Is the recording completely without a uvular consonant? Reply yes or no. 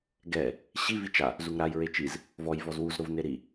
yes